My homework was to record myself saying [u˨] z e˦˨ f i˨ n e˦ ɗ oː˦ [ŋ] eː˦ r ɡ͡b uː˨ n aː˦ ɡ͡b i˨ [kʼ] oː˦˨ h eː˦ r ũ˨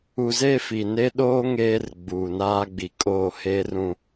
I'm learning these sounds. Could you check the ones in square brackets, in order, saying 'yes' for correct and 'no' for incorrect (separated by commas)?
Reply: yes, yes, yes